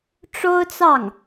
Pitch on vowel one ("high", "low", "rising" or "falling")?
high